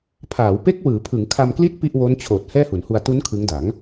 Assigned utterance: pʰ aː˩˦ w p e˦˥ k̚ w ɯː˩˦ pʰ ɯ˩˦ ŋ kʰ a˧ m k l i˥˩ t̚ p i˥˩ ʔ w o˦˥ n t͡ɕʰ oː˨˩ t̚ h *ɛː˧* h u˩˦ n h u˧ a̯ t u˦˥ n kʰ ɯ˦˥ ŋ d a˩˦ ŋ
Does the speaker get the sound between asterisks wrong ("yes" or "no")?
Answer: yes